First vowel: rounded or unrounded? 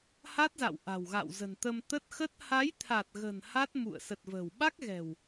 unrounded